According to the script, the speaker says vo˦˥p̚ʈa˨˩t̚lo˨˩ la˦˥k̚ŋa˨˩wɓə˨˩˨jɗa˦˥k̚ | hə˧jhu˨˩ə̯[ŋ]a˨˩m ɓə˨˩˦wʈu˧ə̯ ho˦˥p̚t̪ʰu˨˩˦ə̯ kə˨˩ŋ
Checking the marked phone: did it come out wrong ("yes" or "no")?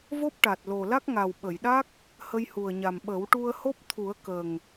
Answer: yes